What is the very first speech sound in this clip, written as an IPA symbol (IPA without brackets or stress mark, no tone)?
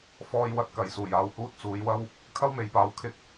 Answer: f